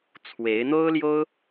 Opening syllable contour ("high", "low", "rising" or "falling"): rising